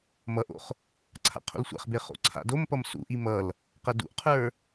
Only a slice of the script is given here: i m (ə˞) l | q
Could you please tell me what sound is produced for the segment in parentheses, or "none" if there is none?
ʌ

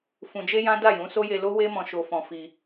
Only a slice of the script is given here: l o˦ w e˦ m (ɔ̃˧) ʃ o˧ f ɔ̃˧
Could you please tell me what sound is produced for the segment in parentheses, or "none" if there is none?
ɔ̃˧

